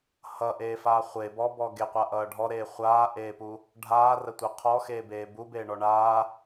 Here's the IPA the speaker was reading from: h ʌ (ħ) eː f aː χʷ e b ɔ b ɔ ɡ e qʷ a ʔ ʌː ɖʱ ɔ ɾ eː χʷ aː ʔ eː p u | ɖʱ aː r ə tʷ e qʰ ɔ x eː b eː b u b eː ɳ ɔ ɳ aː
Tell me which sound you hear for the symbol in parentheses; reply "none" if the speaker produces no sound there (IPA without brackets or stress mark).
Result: ʔ